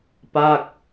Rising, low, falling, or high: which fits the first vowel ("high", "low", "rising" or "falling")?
falling